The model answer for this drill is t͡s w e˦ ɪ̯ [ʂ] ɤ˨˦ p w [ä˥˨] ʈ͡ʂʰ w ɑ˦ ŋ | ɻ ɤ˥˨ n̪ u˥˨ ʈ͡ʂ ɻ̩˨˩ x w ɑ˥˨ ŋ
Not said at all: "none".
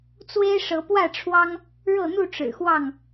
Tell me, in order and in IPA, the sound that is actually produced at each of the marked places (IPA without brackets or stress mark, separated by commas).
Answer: ʂ, ä˥˨